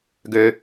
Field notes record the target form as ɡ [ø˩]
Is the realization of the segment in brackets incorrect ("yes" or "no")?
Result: no